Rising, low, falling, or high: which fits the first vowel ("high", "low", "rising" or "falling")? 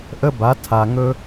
high